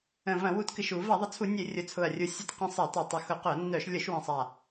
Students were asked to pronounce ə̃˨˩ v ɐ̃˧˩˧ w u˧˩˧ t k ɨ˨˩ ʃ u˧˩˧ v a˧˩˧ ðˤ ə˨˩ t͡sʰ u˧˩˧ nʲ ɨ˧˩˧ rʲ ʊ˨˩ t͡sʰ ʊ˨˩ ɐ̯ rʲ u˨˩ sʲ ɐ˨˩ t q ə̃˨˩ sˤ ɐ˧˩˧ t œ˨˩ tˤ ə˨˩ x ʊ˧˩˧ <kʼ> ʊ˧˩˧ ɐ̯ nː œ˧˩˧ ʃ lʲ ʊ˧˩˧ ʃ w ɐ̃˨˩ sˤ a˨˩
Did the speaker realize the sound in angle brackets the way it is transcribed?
no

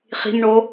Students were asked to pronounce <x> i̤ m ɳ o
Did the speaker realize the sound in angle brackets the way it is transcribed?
no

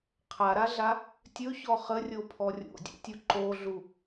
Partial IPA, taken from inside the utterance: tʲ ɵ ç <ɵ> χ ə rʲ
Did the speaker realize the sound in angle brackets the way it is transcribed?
no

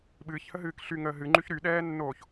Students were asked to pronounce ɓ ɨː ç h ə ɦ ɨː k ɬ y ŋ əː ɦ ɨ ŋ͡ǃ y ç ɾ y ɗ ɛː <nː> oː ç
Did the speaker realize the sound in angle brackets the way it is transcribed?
yes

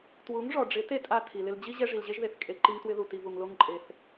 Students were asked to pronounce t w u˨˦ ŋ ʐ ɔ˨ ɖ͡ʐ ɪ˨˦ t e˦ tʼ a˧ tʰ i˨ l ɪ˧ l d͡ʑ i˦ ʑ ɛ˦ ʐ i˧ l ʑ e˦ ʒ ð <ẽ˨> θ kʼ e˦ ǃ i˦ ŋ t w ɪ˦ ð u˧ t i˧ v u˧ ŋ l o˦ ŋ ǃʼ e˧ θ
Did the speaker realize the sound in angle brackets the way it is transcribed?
no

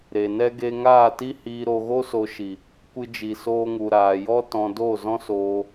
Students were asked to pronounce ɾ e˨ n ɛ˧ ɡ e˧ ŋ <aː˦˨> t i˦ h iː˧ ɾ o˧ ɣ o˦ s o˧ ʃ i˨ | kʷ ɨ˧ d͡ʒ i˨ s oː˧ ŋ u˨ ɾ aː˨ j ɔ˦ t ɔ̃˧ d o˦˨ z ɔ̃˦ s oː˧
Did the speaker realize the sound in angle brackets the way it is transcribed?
yes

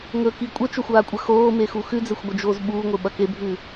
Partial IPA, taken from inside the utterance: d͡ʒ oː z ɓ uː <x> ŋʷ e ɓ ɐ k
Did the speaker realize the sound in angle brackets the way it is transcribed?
no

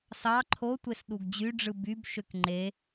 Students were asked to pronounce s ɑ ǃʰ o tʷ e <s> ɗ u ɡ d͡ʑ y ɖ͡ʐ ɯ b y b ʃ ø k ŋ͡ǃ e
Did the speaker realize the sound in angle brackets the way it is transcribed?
yes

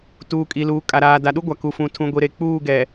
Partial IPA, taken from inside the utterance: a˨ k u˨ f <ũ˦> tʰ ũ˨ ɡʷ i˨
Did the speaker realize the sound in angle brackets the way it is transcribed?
no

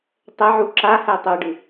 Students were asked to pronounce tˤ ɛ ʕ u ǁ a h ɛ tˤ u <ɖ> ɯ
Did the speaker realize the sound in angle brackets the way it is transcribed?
yes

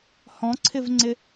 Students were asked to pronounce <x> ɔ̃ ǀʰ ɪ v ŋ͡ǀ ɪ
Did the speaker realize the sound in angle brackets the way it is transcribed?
no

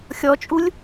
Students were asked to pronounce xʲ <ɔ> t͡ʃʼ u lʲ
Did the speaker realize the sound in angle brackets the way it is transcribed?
yes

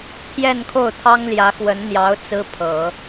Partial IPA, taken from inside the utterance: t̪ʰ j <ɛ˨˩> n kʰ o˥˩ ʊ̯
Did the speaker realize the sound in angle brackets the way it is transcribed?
no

